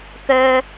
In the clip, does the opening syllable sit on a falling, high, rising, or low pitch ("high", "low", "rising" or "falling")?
low